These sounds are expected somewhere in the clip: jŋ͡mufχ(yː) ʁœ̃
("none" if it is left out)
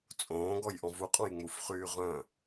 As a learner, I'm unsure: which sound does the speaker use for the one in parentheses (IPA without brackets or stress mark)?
yː